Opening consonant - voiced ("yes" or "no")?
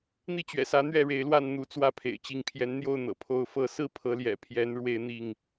yes